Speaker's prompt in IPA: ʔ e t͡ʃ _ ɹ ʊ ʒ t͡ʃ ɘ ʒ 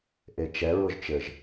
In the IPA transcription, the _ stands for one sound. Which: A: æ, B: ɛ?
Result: B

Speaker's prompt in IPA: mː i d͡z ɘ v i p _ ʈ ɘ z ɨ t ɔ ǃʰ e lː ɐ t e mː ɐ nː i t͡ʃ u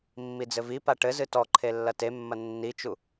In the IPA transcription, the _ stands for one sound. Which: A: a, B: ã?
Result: A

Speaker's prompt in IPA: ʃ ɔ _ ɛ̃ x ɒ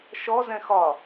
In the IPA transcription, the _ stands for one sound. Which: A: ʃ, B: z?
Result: B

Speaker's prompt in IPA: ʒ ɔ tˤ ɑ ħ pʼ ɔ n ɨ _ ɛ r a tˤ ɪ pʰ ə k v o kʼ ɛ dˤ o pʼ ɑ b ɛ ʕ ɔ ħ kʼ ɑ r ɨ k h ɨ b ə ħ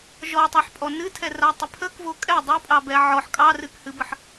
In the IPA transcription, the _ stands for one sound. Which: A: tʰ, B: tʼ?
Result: A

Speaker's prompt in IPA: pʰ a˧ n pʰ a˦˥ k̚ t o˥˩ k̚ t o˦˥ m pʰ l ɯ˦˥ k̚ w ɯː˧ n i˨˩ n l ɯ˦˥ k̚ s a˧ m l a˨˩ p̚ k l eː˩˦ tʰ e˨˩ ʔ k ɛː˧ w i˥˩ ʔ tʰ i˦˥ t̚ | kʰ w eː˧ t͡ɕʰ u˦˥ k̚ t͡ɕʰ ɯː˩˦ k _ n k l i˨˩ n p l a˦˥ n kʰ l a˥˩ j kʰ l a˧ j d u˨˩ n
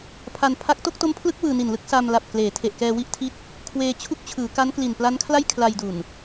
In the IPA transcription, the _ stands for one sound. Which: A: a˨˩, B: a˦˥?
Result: B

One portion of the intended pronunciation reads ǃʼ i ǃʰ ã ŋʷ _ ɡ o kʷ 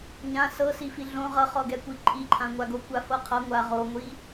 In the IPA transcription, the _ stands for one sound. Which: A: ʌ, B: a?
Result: B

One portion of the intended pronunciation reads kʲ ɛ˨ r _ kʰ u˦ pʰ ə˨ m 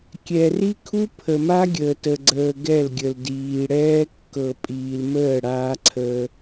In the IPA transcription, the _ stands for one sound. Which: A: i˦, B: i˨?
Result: A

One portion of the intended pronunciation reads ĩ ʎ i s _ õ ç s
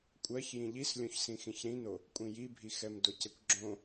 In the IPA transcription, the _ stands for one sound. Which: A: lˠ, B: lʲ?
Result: B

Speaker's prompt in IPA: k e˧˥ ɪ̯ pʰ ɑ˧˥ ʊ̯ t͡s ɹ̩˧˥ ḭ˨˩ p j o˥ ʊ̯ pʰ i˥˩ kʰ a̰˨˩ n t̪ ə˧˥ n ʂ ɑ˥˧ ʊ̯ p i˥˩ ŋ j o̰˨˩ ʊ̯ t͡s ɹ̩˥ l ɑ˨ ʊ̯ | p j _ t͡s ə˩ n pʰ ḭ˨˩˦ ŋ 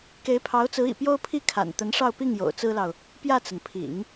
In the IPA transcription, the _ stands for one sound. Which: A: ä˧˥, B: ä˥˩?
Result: B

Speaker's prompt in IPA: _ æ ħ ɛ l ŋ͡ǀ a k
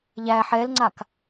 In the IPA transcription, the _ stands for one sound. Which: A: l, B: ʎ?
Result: B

